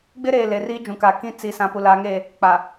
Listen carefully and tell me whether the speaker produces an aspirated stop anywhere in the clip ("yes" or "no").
no